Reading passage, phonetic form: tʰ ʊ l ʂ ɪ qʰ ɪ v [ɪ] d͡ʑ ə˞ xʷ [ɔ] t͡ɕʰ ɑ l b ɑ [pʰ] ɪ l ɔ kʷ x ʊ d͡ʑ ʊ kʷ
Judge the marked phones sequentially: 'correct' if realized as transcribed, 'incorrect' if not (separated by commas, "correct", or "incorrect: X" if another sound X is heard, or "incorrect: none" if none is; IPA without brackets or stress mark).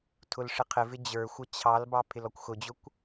correct, incorrect: ʌ, correct